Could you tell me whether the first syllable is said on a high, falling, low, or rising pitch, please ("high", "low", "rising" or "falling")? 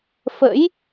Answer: rising